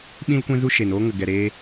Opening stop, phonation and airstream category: implosive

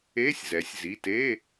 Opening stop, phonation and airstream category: plain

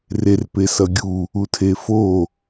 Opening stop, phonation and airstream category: plain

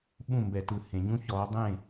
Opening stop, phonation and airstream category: implosive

